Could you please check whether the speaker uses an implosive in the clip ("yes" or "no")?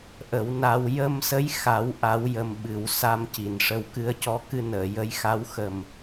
yes